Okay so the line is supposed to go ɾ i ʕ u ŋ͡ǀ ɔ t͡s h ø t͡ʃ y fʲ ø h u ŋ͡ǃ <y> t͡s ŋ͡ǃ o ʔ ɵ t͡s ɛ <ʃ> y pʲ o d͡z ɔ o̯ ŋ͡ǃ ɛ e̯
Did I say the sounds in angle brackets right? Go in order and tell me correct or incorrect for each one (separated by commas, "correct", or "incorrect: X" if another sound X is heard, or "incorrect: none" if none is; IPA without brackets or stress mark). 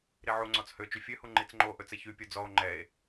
incorrect: i, incorrect: ç